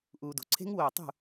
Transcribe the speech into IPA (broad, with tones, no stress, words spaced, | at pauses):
ʔuː˨do̤˨ǀʰe̤˦˥ŋ woː˥˨ tˤṳ˥˨